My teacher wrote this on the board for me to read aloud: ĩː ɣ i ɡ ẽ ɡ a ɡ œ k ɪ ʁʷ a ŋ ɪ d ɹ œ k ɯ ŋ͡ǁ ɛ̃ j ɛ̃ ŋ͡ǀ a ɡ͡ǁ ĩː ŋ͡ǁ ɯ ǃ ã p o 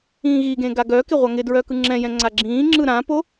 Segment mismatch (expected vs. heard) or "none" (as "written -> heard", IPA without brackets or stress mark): ǃ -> ɾ